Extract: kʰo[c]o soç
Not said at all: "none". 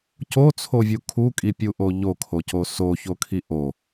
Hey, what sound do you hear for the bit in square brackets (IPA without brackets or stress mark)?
c